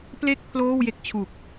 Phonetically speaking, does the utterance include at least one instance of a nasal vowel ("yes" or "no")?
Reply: no